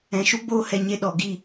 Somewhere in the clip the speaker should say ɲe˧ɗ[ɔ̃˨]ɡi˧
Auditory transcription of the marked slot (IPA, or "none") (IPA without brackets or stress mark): ɔ˨